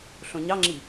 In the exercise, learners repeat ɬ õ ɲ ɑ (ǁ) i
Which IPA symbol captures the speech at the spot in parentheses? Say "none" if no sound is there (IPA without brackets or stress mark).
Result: ŋ͡ǁ